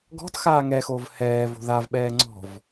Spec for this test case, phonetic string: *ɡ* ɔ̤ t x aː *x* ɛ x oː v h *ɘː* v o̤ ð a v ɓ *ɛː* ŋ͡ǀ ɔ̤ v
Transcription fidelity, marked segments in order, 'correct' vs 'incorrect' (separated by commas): correct, incorrect, incorrect, correct